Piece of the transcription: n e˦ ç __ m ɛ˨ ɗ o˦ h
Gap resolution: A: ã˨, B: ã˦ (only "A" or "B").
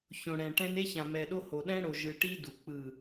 A